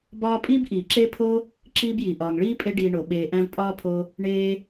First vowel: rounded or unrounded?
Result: rounded